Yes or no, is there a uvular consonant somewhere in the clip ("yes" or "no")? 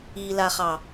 yes